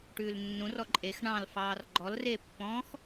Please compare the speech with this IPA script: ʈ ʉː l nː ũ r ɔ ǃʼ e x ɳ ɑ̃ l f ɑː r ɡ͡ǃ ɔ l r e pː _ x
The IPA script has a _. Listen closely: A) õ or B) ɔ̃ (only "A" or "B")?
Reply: B